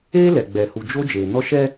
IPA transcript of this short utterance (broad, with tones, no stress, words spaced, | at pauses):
eː˦lɛ˨ ɡ͡bɛ˨hu˨d͡ʒo˦ d͡ʒeː˨nɔ˦ʃɛ˦